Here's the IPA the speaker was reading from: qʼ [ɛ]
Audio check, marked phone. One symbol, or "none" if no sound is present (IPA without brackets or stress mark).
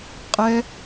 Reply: ɛ